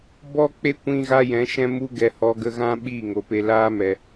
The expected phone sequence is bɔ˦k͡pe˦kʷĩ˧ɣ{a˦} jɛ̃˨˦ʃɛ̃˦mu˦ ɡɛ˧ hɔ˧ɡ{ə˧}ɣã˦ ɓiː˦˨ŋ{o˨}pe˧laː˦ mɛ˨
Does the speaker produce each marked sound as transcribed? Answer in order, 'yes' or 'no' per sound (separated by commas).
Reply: no, yes, yes